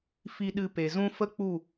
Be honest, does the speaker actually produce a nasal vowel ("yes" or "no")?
yes